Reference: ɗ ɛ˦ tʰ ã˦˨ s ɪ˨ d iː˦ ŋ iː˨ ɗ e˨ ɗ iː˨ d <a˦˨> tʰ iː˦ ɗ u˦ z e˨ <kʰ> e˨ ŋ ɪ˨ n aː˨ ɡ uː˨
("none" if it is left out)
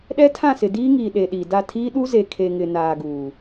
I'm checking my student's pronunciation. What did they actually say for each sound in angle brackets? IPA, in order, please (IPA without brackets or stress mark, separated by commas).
a˦˨, kʰ